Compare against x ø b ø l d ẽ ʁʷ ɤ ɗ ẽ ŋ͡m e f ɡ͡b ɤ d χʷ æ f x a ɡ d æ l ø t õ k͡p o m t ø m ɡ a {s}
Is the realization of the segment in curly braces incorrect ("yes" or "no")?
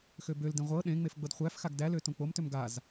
yes